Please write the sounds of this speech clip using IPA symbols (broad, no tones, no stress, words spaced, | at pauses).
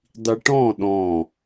dˤiʈɔ̃ ɗɔ̃